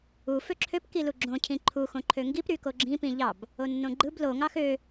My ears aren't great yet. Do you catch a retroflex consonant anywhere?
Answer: no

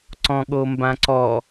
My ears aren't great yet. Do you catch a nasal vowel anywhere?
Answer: yes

